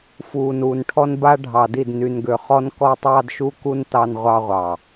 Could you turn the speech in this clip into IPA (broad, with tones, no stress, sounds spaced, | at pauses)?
f uː˨ n uː˨ n ʈʰ ɔ˦ n b a˦ ɖʱ ɑ˨ d i˦˨ d n y˨ n ɡ ø˨ χ ɔ˦ n k ɔ˦ tˤ ɑ˦ d ʃ u˦ k u˦ n t ɑ˦ n ʁʷ ɑ˦ ʁʷ ɑ˨